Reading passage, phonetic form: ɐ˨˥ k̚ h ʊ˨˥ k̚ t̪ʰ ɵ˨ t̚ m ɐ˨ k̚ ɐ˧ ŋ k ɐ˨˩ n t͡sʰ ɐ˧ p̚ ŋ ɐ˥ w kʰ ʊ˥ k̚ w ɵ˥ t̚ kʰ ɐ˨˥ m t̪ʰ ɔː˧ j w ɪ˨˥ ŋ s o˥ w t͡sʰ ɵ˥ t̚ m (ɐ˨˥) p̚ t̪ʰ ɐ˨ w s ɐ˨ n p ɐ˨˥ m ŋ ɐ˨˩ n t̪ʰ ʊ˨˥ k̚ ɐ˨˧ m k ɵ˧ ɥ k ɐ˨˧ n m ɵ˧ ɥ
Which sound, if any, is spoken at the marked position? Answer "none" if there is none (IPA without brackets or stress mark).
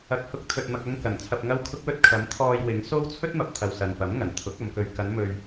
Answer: ɐ˨